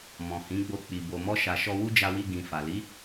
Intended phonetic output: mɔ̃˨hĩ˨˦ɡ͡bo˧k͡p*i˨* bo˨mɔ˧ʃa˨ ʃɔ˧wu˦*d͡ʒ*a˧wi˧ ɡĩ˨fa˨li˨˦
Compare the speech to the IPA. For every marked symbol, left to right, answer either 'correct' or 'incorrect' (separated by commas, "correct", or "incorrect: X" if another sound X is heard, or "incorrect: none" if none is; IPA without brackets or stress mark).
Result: correct, correct